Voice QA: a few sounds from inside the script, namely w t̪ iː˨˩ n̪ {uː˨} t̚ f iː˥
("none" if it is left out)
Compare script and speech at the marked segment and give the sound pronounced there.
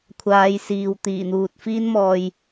uː˨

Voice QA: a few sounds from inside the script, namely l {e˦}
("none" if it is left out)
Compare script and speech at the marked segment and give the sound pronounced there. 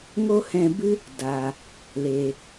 e˨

